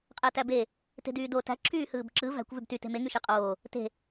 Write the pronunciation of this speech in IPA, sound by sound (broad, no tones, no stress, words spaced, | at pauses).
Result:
qʼætæbe | te̤dyːdo tæ̤ ǁʰyːhɯːbǁɯ væ̤kʷ vybty te̤me ŋyʃeqʼoː | te̤